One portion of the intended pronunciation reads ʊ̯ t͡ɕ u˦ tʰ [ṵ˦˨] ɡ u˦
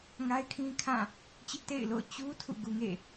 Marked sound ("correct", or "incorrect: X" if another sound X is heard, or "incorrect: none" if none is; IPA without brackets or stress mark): correct